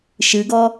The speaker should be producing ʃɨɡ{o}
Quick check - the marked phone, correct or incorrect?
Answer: incorrect